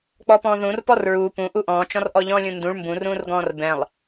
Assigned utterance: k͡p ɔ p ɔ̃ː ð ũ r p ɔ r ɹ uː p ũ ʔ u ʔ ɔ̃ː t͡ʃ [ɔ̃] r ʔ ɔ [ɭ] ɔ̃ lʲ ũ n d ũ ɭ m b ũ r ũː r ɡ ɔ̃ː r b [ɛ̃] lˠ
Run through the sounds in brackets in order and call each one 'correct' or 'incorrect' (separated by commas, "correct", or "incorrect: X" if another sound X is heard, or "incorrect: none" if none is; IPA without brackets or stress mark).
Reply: correct, incorrect: ʎ, correct